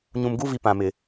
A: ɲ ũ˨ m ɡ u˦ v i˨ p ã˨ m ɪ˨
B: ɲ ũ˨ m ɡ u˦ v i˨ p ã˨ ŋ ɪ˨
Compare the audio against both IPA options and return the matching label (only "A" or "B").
A